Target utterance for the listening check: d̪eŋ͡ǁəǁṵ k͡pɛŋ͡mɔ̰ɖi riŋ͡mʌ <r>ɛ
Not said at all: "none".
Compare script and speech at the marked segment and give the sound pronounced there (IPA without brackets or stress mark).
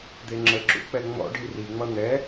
n̪